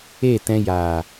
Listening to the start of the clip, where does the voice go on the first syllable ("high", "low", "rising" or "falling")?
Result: falling